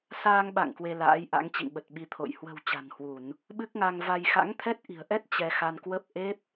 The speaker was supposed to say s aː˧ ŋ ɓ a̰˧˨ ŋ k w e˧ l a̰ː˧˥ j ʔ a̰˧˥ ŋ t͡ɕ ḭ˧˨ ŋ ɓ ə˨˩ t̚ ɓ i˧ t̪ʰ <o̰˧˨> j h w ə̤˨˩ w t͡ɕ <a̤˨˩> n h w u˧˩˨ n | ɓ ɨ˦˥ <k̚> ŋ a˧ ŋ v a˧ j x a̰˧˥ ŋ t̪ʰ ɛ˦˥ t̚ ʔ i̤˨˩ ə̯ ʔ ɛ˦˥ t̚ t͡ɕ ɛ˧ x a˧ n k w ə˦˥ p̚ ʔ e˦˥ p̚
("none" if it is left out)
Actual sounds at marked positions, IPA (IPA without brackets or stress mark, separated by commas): o̰˧˨, a̤˨˩, k̚